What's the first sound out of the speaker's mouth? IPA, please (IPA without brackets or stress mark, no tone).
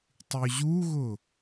tˤ